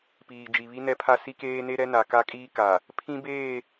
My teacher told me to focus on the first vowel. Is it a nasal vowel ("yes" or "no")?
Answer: no